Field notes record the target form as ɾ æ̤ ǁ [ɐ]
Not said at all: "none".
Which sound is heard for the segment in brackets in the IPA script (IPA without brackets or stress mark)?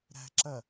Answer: ɐ